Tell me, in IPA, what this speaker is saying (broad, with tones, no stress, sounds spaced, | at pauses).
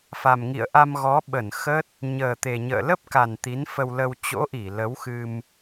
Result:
f a˨˩ m ŋ ḭ˧˨ ə̯ ʔ a˧ m ɣ ɔ˨˦ ɓ ə˧˩ n x ə˦˥ t̚ | ɲ əː˨˩ t̪ e˨˩ ɲ ə̰ː˧˨ l ə˦˥ p̚ k a˨˩ n t̪ i˨˦ n f ə˧ w l ə˧ w t͡ɕ o̰˧˥ ʔ i˧˩ l ə˨˦ w x ɨ˧ m